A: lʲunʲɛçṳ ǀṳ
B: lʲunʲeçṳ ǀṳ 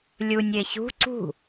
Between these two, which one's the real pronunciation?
B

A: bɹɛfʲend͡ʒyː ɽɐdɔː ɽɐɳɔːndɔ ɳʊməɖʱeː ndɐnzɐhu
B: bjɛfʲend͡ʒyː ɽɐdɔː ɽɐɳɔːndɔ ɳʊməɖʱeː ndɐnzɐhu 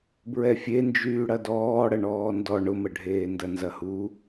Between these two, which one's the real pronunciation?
A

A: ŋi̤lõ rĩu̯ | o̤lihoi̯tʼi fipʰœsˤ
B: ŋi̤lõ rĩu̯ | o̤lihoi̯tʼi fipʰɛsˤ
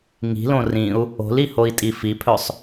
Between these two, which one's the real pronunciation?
A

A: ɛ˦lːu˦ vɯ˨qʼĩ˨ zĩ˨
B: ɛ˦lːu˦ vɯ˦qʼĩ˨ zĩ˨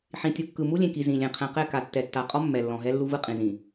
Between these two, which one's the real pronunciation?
B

